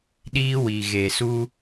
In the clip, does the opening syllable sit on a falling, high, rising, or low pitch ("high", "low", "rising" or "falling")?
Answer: high